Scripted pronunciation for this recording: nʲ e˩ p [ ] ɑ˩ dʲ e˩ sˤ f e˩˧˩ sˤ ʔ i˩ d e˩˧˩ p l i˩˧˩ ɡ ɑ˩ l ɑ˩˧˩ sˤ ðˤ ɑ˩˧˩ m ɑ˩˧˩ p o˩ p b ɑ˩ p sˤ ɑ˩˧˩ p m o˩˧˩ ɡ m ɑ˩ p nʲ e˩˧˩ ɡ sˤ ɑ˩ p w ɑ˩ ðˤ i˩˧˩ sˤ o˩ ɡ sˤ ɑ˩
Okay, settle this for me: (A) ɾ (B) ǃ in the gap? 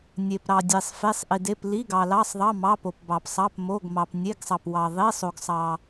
A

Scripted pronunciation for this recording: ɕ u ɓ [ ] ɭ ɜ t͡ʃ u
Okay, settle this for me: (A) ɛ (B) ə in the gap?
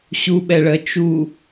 A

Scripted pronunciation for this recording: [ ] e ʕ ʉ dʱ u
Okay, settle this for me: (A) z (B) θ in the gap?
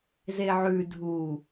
A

